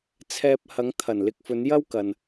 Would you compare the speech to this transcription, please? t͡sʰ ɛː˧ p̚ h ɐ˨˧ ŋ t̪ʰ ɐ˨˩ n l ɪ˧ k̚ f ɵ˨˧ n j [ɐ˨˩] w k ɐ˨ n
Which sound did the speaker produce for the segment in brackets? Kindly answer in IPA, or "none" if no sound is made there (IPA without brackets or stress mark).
ɐ˥